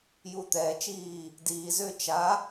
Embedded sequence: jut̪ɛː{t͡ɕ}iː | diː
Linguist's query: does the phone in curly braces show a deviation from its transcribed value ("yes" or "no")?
yes